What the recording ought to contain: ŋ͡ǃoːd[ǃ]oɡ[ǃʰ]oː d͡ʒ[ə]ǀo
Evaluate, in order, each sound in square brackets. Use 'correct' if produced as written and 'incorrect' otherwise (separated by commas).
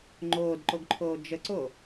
correct, correct, correct